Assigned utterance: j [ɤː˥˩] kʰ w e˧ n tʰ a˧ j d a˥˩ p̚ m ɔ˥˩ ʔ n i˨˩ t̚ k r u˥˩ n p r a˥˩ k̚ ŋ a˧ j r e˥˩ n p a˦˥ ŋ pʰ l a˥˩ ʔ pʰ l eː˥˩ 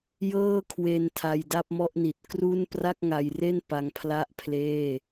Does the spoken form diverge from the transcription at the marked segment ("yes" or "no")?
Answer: no